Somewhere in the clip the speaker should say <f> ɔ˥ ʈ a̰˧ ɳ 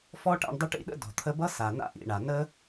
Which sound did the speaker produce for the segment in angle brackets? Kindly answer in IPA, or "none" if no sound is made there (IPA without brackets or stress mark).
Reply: f